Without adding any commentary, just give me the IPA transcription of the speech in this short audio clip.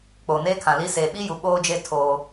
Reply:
k͡p oː˨ n eː˦ kʰ ã˨ l i˦ s eː˨ ɓ i˦ j u˨ ɓ oː˦ d͡ʒ e˦ tʰ oː˦

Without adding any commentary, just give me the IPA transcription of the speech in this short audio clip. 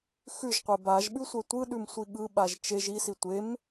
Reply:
x ʉ ʒ qʷ e b a ʒ ɓ ʉ sʷ ɛ tʷ ɯ ɗ ʉ m sʷ i ɠ ɯ ɓ a ʒ t͡ʃ e ʒ i s i tʷ e m

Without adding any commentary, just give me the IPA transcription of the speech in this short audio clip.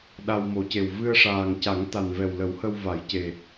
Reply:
ɗ a˧ w m o˨˩˦ c e˨˩ w v ɨ˧ ə̯ ʂ aː˨˩ ŋ c a˨˩˦ ŋ t̪ a˨˩ n v ɛ˨˩ w l ə˨˩˦ w h ə˧ w v a˨˩˦ j c e˨˩

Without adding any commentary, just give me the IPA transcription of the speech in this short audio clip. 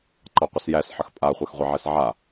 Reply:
ǃ ɑ qʷ ə s j æ s ħ ə x pʼ a χʷ a x ʁʷ ɛ ʕ ɛ s ʕ a

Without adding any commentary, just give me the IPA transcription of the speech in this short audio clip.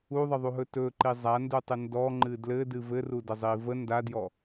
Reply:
u ðˤ ə ðˤ u ɦ ɵ t ɵ ǃ i zˤ a n d u tˤ ɨ n d ɔ ŋ͡ǃ ɨ d l ɘ d ɨ v ɘ r u d ə zˤ i v ə n d a d j ɔ

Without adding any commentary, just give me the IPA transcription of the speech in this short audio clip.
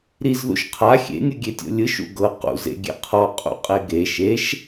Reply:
ɾ i z ð ṵ ʃ qʰ a xʲ ḛ nʲ ɯ ɡʲ e tʲ o̰ lʲ ɯ ʃ ṵ ɡ ɤ q ṵ z ḛ ɡʲ ḛ qʰ ɔ qʼ ṵ qʼ e ɡ e ʃ e ʃ

